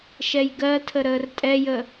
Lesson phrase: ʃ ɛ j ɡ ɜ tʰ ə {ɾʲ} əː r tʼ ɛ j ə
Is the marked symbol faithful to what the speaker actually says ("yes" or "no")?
no